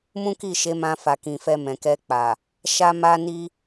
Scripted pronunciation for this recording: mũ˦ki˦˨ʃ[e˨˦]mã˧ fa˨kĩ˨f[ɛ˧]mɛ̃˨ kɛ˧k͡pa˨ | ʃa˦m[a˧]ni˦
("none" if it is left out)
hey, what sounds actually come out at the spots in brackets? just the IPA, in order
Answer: e˨˦, ɛ˧, a˦

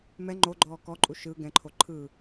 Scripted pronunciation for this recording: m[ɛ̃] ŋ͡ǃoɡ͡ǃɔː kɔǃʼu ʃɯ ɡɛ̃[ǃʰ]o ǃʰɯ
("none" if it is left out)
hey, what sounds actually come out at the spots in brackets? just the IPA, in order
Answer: ɛ, ǃʰ

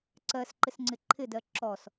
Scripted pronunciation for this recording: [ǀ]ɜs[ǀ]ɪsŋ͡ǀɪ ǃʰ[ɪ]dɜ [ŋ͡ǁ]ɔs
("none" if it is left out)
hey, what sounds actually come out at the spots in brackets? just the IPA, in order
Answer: ǀ, ǃ, ɪ, ǁ

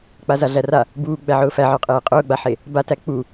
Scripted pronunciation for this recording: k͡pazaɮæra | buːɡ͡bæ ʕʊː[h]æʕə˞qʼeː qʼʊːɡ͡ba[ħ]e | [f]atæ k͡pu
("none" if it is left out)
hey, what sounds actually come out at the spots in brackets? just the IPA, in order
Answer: f, ħ, b

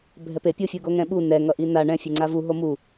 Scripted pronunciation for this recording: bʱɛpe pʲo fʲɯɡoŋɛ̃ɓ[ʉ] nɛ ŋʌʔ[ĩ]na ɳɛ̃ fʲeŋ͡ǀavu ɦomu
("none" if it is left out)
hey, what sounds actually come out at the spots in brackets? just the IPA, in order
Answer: u, i

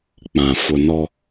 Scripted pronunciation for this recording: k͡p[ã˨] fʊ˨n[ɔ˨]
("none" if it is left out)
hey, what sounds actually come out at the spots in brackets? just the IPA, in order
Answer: ã˨, ɔ˦

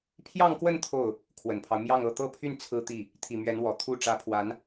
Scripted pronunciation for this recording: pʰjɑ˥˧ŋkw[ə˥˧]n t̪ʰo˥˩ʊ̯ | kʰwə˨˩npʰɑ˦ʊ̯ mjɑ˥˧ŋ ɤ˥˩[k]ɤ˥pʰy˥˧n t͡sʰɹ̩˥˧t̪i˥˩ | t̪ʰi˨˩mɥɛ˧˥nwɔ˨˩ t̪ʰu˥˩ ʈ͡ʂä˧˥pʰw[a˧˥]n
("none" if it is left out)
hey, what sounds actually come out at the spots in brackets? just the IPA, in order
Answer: ə˥˧, t̪, a˧˥

